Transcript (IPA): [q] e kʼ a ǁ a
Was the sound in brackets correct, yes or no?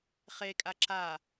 no